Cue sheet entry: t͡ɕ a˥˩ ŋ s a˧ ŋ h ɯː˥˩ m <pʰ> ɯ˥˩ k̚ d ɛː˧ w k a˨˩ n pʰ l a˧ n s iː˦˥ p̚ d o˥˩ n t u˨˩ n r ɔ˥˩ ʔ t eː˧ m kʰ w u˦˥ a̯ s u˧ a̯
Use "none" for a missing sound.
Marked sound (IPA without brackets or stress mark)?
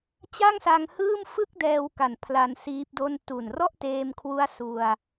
f